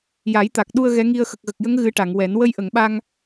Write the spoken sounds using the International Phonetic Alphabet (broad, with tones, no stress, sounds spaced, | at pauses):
j a˨˩˦ j t̪ a˨˩ k̚ ɗ u˧ ə̯ ɣ ɛ˧˥ ŋ i˧ ə̯ x ə˨˩ k̚ ɣ ə˨˩ k̚ j ə˧˥ ŋ ɣ ɨ˧˥ ʈ a˨˩˨ ŋ w ɛ˨˩˦ n w ə˧ j ʔ ə˨˩˨ ŋ ɓ a˧ ŋ